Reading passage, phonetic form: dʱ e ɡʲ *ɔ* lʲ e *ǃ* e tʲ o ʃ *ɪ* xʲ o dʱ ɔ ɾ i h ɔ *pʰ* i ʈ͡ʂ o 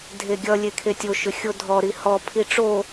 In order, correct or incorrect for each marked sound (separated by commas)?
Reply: incorrect, incorrect, incorrect, correct